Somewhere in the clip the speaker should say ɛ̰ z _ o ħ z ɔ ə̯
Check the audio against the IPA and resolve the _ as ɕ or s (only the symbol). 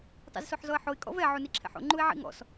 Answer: s